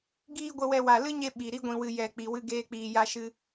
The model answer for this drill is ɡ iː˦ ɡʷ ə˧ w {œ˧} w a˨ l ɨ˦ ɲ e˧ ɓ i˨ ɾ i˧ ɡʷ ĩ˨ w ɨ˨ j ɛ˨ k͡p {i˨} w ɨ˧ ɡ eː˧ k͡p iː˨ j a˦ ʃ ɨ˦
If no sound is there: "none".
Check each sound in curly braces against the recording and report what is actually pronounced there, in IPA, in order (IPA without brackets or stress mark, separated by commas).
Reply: ɛ˧, i˨